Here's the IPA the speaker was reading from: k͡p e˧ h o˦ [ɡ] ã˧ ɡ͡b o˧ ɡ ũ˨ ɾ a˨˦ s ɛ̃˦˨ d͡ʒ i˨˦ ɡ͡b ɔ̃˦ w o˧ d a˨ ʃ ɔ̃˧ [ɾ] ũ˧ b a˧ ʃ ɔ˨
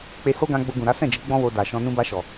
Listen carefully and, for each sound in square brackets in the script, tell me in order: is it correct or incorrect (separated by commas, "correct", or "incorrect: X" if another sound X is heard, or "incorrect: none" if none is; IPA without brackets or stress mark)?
correct, incorrect: n